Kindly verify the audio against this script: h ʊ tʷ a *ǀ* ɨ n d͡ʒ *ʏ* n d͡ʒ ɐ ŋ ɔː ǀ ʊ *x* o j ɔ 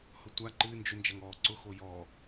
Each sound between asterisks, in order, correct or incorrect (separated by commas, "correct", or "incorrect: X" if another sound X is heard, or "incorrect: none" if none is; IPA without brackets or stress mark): incorrect: ǃ, correct, correct